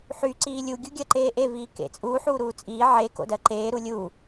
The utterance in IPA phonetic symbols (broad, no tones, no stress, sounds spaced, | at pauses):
ħ y ǀ iː lʲ u ɡʲ u ɡʲ ɜ ǃ eː ʔ e v iː k ḛ t͡sʼ uː ħ uː ɾ uː t͡sʼ iː ʕ e k o̰ d ɜ ǃ eː ɾ u lʲ u